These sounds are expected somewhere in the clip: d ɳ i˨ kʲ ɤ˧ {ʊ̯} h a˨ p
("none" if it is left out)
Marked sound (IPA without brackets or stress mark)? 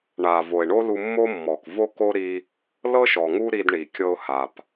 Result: ʊ̯